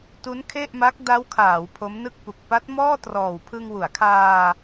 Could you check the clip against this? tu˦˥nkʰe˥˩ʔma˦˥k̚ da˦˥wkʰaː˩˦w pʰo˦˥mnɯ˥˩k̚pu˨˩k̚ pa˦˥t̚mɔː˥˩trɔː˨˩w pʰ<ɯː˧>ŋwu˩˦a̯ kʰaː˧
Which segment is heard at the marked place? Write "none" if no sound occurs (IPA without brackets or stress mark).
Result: ɯ˧